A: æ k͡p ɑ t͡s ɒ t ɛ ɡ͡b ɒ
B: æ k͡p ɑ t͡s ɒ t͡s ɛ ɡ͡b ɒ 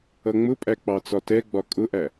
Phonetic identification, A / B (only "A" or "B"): A